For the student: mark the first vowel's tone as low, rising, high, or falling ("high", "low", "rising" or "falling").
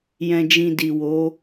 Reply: low